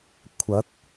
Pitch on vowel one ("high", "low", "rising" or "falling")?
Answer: rising